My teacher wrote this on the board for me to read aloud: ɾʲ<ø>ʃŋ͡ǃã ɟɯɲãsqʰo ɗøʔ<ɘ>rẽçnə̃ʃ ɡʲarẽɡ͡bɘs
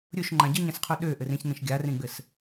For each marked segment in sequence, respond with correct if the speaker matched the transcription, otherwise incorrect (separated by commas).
incorrect, correct